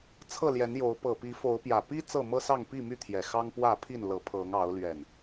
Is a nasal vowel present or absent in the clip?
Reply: absent